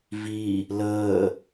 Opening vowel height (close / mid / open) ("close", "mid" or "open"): close